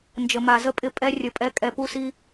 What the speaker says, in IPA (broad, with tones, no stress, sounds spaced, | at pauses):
n d͡ʒ ə˨ m a˨ z ə˧ pʼ ɪ˧ pʼ ɛ˦ rʲ ə˧ pʼ ɛ˦ kʼ ɛ˧ p u˦ s i˦